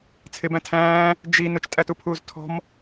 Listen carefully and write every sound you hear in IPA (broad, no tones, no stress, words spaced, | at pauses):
t͡sʰɪbæ̃ tʰæ̃ː | d͡ʒi nʊt͡ʃtʼætupʰuːz tʰɔ̤m